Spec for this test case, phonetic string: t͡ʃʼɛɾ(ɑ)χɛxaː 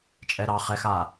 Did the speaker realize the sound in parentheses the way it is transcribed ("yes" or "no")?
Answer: yes